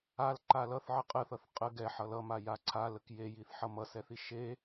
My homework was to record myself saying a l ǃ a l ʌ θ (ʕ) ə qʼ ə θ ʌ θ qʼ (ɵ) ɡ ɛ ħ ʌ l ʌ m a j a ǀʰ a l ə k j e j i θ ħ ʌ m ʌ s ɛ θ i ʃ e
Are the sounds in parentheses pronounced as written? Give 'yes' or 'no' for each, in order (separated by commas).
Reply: yes, no